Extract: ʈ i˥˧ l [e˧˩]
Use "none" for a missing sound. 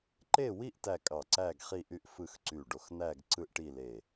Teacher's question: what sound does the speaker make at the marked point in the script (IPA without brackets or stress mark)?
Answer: e˧˩